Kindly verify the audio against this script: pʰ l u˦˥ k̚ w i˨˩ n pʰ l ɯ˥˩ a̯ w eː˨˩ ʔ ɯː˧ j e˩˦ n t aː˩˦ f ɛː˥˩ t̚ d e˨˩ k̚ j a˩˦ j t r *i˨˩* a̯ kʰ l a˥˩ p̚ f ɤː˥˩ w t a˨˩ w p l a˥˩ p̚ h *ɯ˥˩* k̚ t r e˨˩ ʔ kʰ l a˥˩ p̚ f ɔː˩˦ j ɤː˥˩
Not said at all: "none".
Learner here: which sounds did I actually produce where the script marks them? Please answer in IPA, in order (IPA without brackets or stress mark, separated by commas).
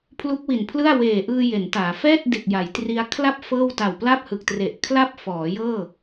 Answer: i˧, ɯ˨˩